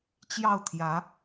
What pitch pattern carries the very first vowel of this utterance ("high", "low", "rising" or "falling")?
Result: falling